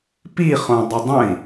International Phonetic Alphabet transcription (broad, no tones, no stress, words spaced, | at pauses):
piχõdˤə dˤə̃i̯